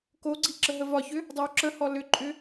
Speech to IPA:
k o ɡ͡ǀ i ǁ ə ɦ ə v ɒ ç ʏ | dˤ ʌ w ǁ ə h ɔ l ʏ ǃʼ ʏ

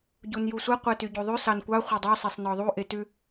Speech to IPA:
ɟ u n j u sʷ ɛ qʷ ɛ t y ɟ u ðˤ ʉ s ɑ n kʷ ɑ χʷ ɛ dˤ ø sˤ ɛ sˤ n ɔ ðˤ u ʔ e t ʉ

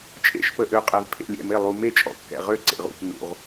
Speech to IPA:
t͡ʃʼ ḛ˧˩ ʃ p ə˩ ʔ ø˩ qʼ ɛ˩ v pʰ ḛ˧˩ lʲ ɛ̰˧˩ m e˧˩ lˠ u˩ m e˧˩ t͡ʃʼ ɔ̰˩ kː ɛ̰˩ ʁ ø˧˩ ǀ ḛ˩ ʁ ṵ˧˩ p n ṵ˩ ʁ

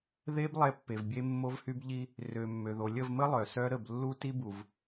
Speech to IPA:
ð e˦ b lˠ ɛ˦ pː e˨ v bʲ e˦ mː o˦ v h y˦ b ʎ i˦ | r ø˨ mː ø˨ ð o˨ lʲ ə˦˨ v m ə˦ lˠ œ˨ s œ˦ ɾ ə˦˨ b lː u˦ t i˦ b u˨ v

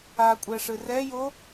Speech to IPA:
a kʷʼ ɛ ʂ ɨ r ɛ j o

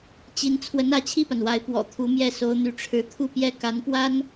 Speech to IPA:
t͡ɕ i˧˥ n t͡sʰ w ə˧˥ n ä˧˥ t͡ɕʰ i˥˩ p a˩ n w a˧˥ ɪ̯ p w ɔ̰˨˩ t̪ʰ u˧˥ m j ɛ˥˩ s o˧˥ ʊ̯ n̪ y˧˥ ʈ͡ʂʰ ɻ̩˧˥ t̪ʰ u˥˧ p j ɛ˥˩ k a˧˥ n p w a˥ n

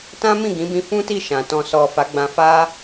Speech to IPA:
t ã˦ m ĩ˦˨ ɡ ĩ˨˦ b ĩ˧ f ũ˦ t i˦˨ ʃ ã˨ t ɔ̃˨ s ɔ˨ f a˨˦ ɡ͡b ã˧ f a˦

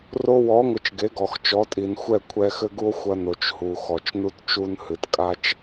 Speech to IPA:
r o˧ w ɔ˨˦ ŋʷ ɨ˨ t͡ʃ ɡ e˨˦ ɡ ɔ˨ x t͡ʃ ɔ˨˦ tʼ i˨ n xʷ ɛ˦˨ kʷʰ ɛ˧ x ɘ˦ ɡ u˦ o̯ xʷ ɐ˧ n o˨ t͡ʃ h u˨ x ɔ˨ t͡ʃ n u˦ t t͡ʃ u˦ n h ɨ˨ t kʼ a˦ t͡ʃ

